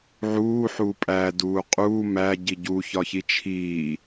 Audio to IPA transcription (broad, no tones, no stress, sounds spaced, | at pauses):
ʕ uː ħ uː pʼ æ d uː qʼ uː m æ ɟ i ɟ u ç ɒ ç i t͡ʃʰ iː